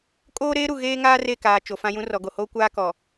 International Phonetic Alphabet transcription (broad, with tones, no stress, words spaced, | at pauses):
kʼoː˦ɾeː˦ɾu˨ ɣeː˦ŋaː˦re˦˨kaː˨ t͡ʃo˨fã˦jũ˦ rɔ˨ɡo˨hoː˦ kʷaː˦kɔ˨